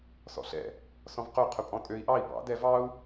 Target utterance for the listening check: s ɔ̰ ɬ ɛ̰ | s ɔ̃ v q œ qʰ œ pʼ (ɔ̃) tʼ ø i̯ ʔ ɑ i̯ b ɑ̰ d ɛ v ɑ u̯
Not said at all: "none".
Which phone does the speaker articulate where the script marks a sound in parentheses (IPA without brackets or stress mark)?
ɔ̃